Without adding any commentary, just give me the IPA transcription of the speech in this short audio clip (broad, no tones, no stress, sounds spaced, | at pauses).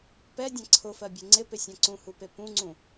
p ɛ dʲ ã ǀʰ ʊ f ɜ bʲ e ŋ͡ǀ ɪ p ɪ sʲ ã ǀ ũ h u p e p ũ ŋ͡ǀ ũ